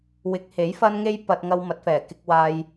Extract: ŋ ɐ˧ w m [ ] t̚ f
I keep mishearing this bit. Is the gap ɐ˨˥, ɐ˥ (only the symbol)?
ɐ˨˥